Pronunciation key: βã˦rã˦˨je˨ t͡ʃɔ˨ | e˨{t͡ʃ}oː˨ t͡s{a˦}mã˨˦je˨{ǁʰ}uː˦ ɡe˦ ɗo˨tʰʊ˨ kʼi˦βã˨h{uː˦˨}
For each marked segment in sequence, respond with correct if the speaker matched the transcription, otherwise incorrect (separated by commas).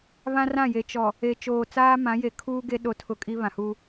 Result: correct, incorrect, incorrect, incorrect